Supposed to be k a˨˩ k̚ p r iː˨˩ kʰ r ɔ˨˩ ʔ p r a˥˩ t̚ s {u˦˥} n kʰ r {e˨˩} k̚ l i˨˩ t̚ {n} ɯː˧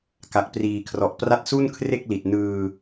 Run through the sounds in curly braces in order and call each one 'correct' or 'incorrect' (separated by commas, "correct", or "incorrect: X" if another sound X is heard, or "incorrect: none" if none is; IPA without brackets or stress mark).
incorrect: u˥˩, incorrect: e˥˩, correct